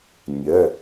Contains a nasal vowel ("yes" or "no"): no